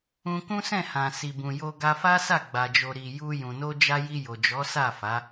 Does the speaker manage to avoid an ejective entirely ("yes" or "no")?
yes